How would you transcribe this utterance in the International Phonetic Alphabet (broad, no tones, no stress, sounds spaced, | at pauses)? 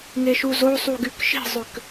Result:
ŋ e ʃ u z o sˤ u ɡ y k ʃ i̤ zˤ ʏ k